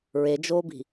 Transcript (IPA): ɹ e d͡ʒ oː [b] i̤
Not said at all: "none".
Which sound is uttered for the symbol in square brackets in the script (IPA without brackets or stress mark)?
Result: b